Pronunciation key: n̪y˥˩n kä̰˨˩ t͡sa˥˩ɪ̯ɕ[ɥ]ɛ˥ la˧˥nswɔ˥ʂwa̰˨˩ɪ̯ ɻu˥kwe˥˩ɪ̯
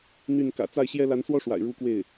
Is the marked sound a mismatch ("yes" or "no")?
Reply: yes